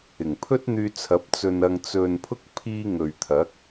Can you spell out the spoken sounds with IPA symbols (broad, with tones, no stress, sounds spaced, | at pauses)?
ɪ˨˩ ŋ pʰ ɵ˥ t̚ n̪ yː˧ t͡sʰ ɐ˨˥ p̚ t͡s ɵ˧ n ɐ˧ ŋ t͡s ɵ˨ n pʰ ʊ˥ k̚ pʰ iː˧ ŋ ɵ˨ ɥ t̪ʰ ɐ˨˥ k̚